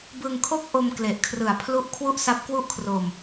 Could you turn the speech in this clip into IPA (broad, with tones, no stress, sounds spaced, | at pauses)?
b ɯ˧ ŋ kʰ o˥˩ k̚ ʔ o˧ m k l e˨˩ ʔ kʰ r ɯ˨˩ a̯ pʰ l u˦˥ ʔ kʰ w u˥˩ ʔ s a˦˥ p̚ k w u˥˩ ʔ kʰ r o˧ m